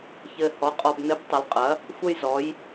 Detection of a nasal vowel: absent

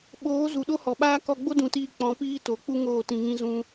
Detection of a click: absent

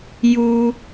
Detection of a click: absent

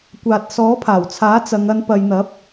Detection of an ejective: absent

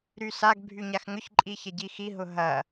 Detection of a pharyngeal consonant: absent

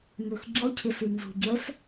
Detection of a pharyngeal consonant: absent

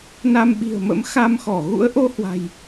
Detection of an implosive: present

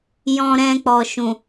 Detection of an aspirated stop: absent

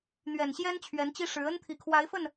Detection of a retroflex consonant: present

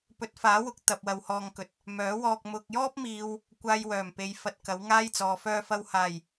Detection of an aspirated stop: absent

